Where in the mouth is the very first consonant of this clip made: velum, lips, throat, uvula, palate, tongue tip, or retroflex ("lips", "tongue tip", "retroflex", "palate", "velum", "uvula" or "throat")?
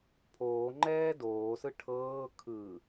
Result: lips